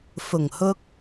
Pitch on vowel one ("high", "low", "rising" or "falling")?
low